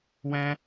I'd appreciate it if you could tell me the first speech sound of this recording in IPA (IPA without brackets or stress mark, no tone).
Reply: w